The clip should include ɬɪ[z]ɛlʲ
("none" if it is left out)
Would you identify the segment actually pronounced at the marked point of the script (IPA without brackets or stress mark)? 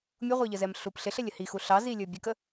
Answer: ɬ